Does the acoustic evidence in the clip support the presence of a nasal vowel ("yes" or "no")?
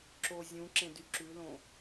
yes